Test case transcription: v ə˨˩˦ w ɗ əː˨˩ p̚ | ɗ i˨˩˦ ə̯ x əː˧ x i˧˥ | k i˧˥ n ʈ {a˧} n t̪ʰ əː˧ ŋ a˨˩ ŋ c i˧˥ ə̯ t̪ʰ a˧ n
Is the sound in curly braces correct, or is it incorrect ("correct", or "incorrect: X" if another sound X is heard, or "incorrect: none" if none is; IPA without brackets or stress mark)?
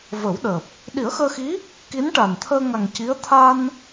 incorrect: a˨˩